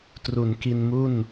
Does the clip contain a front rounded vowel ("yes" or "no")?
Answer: no